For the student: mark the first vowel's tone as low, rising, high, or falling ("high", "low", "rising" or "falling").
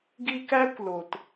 high